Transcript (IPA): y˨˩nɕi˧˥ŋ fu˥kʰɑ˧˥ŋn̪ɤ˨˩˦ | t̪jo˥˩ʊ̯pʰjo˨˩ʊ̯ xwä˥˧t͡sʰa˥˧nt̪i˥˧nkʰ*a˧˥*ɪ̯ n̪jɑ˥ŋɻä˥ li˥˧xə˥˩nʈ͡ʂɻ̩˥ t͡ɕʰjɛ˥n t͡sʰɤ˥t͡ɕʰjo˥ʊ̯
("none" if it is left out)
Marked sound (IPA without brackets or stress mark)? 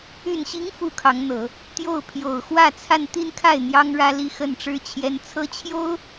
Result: a˥˩